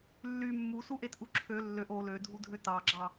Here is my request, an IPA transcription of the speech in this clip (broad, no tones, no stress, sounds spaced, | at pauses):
lː y mː u s u ʔ e t ʔ u ǁʰ ø lː ø ʔ o l ø dʱ u dʱ ø t ɑ ɡ͡ǁ ɑ